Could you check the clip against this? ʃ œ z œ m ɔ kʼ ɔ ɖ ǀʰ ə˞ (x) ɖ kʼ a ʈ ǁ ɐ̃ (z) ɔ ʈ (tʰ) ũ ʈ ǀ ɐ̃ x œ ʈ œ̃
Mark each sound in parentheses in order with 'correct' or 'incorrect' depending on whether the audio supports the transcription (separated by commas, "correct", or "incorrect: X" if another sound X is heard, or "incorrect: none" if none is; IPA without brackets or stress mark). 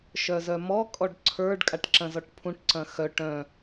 incorrect: none, correct, incorrect: pʰ